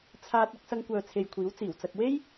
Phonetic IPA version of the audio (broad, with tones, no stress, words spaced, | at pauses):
t͡sʰaː˧t̚ɪ˧k̚ sɐ˧ŋkʷœː˨t͡sʰe˨j kʷʰiː˨˥wt͡siː˨˩wt͡sɐ˧k̚ we˥j